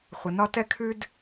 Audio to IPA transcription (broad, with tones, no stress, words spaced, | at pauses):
χʷə˩nɒ˧ tɛ˧kʰʉ˧d